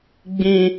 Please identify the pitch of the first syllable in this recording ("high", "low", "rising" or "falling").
high